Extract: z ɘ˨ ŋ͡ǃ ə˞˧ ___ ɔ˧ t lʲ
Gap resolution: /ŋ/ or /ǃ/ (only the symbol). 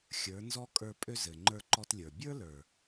ǃ